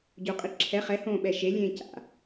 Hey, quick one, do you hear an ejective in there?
yes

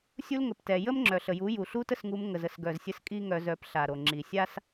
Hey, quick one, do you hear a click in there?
yes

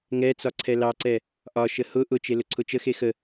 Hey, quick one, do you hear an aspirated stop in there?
yes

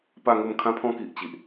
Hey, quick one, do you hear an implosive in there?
no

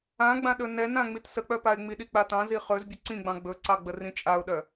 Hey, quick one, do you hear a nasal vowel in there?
yes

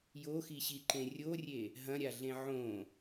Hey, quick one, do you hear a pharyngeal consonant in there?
yes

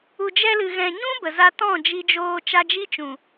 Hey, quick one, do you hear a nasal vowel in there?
yes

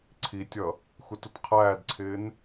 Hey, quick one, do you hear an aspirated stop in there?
yes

